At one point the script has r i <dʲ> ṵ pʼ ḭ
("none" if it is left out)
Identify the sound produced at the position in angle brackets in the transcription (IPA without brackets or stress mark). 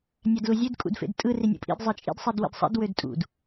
nʲ